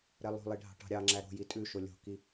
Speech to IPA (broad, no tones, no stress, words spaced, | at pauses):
ɾɛlˠo̤lˠi ɖʱɑ̤ʈɑ̤ɾʲɑŋ͡ǁæ ɾo̤ji tʼʉ ʃolʲo̤ki